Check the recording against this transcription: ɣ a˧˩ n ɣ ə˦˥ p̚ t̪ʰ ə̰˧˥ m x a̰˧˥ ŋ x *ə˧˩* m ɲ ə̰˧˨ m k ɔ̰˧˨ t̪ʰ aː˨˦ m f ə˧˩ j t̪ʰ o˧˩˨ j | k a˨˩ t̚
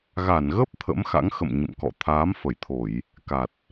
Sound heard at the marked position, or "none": ə̰˧˨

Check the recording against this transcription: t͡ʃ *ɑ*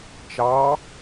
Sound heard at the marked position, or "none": ɑ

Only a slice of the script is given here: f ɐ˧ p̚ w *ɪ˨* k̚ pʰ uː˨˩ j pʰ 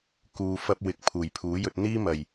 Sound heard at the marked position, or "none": ɪ˨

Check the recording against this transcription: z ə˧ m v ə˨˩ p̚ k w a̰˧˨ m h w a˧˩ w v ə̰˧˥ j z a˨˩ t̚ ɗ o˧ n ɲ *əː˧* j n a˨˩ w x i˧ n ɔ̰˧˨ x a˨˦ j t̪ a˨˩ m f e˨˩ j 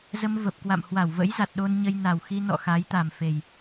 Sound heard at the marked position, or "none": ə˧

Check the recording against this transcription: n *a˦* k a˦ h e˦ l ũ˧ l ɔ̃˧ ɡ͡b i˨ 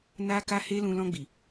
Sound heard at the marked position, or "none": a˦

